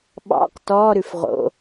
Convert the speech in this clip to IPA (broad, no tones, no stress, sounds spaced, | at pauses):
ɓ ɑ̰ q t ɔ ɾ ʉ f ʁ o̰